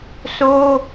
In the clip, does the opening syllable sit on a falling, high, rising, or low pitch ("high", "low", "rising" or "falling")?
high